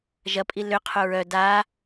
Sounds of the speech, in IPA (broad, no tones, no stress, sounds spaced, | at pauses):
ʒ ɐ pʼ i l ʏ qʰ ʊ ɹ œ d a